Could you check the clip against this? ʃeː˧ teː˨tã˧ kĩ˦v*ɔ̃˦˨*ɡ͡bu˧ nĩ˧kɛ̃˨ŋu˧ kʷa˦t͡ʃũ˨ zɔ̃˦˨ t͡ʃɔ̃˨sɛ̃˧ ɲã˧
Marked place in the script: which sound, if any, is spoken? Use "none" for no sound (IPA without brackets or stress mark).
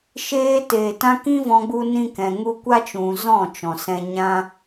ɔ̃˧